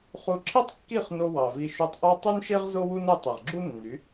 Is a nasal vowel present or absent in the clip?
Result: absent